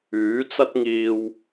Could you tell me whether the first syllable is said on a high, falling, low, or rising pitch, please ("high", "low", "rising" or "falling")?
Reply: rising